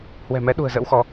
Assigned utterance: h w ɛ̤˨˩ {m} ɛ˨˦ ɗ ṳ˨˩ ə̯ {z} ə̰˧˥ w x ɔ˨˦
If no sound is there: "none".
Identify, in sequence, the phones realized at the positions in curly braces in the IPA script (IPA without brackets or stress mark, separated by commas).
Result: m, z